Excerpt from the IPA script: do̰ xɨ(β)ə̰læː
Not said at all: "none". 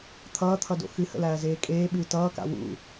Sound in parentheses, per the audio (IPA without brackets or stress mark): h